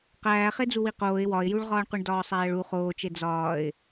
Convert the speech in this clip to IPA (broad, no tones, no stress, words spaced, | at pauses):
qæː χed͡zuwiqoːɪ̯ wɒɪ̯juɭʁɒːɳquɳ dɒːsˤæːɭu χoːt͡ʃe d͡zɒːɪ̯